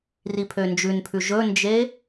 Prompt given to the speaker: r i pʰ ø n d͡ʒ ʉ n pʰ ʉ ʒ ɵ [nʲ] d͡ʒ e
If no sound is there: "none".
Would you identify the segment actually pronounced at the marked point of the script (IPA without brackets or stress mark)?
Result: n